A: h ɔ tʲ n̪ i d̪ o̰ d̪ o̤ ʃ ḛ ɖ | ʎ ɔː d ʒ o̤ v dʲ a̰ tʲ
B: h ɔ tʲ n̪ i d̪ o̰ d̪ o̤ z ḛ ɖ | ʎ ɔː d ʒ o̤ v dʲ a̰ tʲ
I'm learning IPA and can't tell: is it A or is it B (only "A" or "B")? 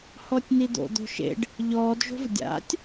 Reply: A